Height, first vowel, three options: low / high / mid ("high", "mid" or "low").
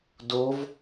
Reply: mid